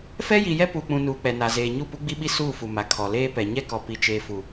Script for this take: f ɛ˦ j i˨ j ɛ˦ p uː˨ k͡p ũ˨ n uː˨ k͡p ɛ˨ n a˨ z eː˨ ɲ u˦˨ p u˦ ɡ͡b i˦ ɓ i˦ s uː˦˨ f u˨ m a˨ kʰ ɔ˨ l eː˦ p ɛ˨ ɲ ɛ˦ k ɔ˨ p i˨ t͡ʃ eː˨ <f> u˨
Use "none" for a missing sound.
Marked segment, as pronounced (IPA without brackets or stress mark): f